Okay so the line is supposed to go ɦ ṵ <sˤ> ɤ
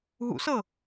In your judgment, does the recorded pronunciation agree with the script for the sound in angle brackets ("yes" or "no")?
no